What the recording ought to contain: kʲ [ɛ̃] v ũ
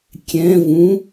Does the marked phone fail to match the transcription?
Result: no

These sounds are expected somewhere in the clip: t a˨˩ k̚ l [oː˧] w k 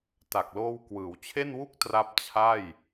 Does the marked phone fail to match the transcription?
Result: no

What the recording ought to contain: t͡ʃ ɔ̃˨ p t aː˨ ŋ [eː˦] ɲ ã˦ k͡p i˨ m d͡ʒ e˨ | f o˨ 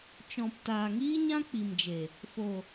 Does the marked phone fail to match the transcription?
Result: yes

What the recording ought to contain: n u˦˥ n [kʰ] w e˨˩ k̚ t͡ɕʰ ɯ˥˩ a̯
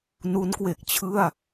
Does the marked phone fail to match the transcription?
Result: yes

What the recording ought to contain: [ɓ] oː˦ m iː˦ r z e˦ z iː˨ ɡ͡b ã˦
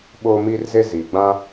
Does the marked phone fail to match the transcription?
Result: no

